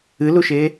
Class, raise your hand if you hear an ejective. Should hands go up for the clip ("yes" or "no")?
no